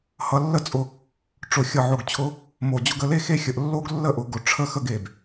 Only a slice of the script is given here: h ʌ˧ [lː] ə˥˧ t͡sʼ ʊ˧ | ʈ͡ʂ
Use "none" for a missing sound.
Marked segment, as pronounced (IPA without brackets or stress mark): lː